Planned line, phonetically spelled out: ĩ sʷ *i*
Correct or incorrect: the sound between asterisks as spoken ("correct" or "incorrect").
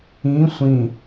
incorrect